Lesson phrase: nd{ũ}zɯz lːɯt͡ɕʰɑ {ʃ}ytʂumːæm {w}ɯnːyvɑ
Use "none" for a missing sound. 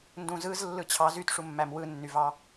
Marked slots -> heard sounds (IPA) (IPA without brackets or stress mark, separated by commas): ũ, z, w